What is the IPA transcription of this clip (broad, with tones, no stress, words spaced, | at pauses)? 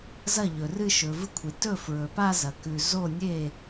zɐ˥˩ ʎɵ˩rɨ˥˧ ʃɵ˩˧vɨ˥˧kʷʰi˩ tɵ˥˩ fɹɵ˩pa˥˧ zɐ˩kʉ˩zo˥˩nʲe˥˩